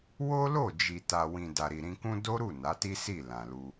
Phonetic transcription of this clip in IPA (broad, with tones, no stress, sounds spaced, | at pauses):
w o˦ l o˦˨ d͡ʒ i˨ t a˨ w ĩ˨ d a˨ ɾ i˨ ɾ ĩ˧ k ũ˦ d o˦ ɾ u˦˨ n a˨˦ t i˦ s i˦˨ l ã˨ l u˧